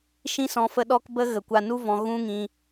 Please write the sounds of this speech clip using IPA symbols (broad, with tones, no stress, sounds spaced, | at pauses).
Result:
ʃ ĩ˦ s ɔ̃˧ f ə˦ ɗ ɔ˦ k b ə˦ ɣ ə˨ kʷ a˧ n u˦ v ɔ̃˧ ɣ ũ˦ ŋ ĩ˧